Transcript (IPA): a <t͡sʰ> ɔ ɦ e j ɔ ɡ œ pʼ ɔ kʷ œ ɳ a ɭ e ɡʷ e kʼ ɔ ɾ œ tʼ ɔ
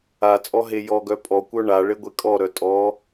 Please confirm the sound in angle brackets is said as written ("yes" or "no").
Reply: no